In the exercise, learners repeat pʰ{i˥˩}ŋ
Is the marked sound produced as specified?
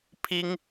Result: no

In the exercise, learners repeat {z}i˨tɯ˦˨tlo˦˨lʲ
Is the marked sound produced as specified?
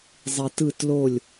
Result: no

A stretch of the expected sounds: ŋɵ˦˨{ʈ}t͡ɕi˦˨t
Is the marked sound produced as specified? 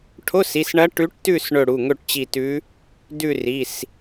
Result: yes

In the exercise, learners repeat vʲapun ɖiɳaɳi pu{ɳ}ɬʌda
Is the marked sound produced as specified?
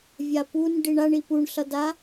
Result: yes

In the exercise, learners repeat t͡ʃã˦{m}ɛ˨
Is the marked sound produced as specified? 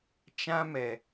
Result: yes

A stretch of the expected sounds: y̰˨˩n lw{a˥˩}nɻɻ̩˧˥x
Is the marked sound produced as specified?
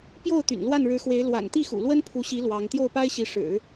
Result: yes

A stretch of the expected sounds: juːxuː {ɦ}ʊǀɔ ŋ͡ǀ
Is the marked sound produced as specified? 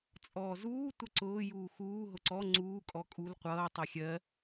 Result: yes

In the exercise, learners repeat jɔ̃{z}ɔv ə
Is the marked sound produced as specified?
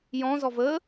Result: yes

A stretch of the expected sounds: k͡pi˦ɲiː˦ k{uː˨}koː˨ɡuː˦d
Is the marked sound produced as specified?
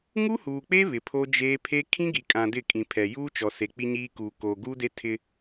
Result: yes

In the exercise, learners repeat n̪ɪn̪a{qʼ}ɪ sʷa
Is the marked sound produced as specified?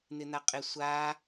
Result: yes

